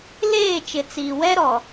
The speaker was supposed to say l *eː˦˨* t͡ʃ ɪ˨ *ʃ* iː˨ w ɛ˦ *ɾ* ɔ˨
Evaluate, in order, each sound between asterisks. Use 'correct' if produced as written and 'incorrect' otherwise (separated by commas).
correct, incorrect, correct